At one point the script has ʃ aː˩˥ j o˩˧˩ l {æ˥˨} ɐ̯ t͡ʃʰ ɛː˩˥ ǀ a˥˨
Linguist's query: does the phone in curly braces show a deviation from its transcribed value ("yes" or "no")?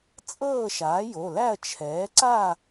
no